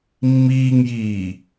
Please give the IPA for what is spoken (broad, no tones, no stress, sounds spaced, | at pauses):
mː iː ŋ j iː